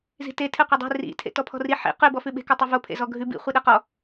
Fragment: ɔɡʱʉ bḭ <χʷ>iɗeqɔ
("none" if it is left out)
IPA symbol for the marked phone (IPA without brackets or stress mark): χʷ